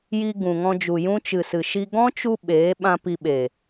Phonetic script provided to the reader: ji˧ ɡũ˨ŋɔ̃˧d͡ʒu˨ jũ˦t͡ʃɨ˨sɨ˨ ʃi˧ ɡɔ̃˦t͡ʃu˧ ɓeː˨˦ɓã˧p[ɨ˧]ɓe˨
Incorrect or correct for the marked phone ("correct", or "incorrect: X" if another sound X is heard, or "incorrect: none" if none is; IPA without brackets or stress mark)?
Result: incorrect: i˧